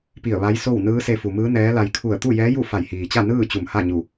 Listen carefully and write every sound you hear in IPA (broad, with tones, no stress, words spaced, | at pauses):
pi˧˩ə̯ ʋa˧˥jso˥˨w nɯː˧˥se˧fu˩mɯː˧˥ nɛː˧˥la˧j kʰu˧˩ə̯t̪u˥˨jɛː˧˥ ju˥˨fa˧˩jhiː˩t͡ɕa˥˨ nɯː˥˨ t͡ɕu˧˩mha˥˨ɲu˧˩